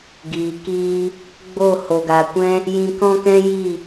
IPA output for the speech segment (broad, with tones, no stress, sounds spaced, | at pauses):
ɡ iː˨ k iː˦ | ɡ͡b o˦˨ h o˨ ɡ a˨ kʷ ɛ̃˦ | j ĩ˧ k ɔ̃˦ k ɛ̃˦ j i˦˨